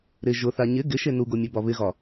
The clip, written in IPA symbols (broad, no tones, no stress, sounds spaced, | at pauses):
ɾ ɪ ʒ ʊ θ a ɲ ɪ ɡ ɪ ʃ e n u ɡ o mʲ ɘ b ɒ β ɪ ɣ ɒ